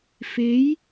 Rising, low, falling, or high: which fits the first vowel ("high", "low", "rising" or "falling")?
rising